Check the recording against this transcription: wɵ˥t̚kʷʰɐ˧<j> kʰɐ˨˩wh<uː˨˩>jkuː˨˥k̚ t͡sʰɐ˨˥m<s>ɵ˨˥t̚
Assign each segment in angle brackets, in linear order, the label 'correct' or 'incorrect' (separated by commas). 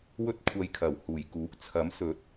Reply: correct, correct, correct